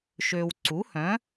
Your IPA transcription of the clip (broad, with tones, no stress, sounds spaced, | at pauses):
ʃ ø˨ w ǀ u˩˥ h œ̃˩˥